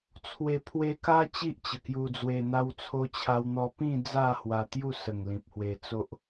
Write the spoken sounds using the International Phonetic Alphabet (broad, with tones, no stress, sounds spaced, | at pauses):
t͡sʰ w e˨˩ pʰ w e˧ k a˦ t͡ɕ i˦ ʔ t͡ɕ ə˨˩ k j u˧ d͡z w e˧ n̪ a˧ w t͡sʰ o˧ t͡ɕʰ a˧ w n̪ ɔ˧ p ĩ˥˧ d͡z a˥˧ h w a˧ t̪ j u˥˧ s ə˨˩ ŋ l ĩ˨ p̚ h w e˧ t͡s o˦ ʔ